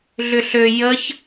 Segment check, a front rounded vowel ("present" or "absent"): present